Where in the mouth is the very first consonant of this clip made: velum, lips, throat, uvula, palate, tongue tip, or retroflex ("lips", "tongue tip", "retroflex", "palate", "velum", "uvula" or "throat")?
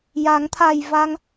palate